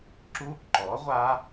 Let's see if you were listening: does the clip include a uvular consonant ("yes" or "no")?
yes